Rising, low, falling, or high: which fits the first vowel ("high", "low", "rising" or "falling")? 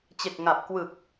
low